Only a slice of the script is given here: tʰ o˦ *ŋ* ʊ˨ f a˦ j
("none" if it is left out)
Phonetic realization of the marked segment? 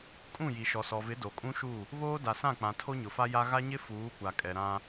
ɲ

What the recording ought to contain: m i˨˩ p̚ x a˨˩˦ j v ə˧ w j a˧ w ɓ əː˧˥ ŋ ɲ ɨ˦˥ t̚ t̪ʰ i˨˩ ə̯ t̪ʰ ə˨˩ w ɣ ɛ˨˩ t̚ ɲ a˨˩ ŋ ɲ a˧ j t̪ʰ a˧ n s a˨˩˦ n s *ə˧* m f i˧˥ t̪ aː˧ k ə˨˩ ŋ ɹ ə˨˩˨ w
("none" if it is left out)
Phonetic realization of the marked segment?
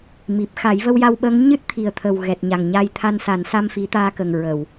a˧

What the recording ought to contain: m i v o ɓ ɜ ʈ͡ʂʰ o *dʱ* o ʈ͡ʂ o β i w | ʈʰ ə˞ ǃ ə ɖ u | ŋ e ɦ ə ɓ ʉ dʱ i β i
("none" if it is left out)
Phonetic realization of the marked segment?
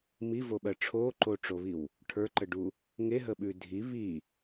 ǃ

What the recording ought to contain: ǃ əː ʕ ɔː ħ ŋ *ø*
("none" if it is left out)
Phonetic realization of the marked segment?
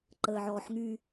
y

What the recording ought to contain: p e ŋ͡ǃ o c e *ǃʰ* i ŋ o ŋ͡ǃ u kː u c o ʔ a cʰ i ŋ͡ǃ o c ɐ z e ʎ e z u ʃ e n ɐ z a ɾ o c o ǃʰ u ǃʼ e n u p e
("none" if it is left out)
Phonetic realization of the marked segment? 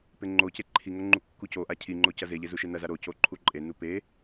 ǃʰ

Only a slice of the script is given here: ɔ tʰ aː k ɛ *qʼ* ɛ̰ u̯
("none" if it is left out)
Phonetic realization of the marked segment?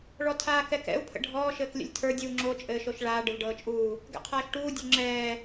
k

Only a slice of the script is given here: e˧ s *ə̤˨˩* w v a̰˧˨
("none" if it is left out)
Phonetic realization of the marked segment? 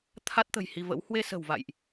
ə̤˨˩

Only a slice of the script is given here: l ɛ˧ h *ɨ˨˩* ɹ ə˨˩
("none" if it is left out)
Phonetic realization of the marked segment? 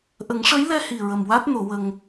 i˨˩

